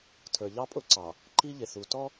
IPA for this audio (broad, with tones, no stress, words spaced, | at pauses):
tʰə˞˨ʎɑ˦pʼʊ˦ǀɑ˨ | ǃi˦ʎɪ˨θu˨ tɔ˦